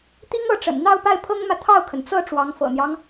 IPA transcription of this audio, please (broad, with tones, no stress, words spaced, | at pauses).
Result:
t̪i˥ŋɤ˥˩ʈ͡ʂə̰˨˩n n̪ɑ˥˧ʊ̯pa˥˩ɪ̯pʰɤ˥ŋmä˨ t̪ʰɑ˥˩ʊ̯kʰə˩nt͡sɤ˥˩ ʈ͡ʂwɑ˧˥ŋfɤ̰˨˩n̪jɑ˦ŋ